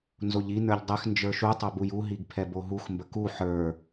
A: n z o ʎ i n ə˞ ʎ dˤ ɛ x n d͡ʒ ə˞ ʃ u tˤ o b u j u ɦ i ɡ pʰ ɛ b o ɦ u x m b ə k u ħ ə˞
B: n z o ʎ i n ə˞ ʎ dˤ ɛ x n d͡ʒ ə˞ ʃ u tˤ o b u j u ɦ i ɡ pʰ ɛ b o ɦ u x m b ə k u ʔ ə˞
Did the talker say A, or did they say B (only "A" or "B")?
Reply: A